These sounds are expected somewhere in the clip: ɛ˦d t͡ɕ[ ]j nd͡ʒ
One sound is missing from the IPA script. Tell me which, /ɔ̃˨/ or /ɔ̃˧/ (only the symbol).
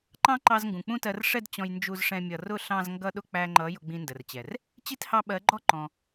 ɔ̃˧